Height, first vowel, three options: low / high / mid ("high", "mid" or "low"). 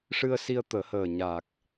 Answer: high